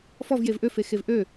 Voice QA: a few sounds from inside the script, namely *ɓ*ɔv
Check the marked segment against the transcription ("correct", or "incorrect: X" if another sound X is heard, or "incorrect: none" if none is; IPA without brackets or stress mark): incorrect: f